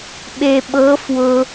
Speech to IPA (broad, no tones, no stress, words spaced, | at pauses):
ɓe ɓɤ fwʊ